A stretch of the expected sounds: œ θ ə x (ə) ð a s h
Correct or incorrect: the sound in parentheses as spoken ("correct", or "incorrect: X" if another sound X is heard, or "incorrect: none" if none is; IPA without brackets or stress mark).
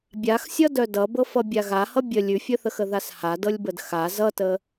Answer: correct